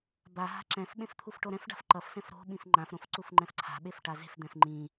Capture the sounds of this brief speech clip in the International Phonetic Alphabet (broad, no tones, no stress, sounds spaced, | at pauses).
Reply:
b a ɦ a̤ ǁ ɛ̃ f ɓ ẽ f t̪ʰ u f ʈ o ɾ ɛ̃ f ɖ a̤ f ǃ ʌ f s ɛ̃ f ɾ o̤ ɓ ĩ f ŋ͡ǃ ã f ɾ õ f ǀ u f ŋ͡ǃ ɛ̃ f ǀʰ a̤ ɓ e f ʈ a z e̤ f d̪ ɛ̃ f ŋ͡ǃ ĩ